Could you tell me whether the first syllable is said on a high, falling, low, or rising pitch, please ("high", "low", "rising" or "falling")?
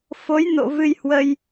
rising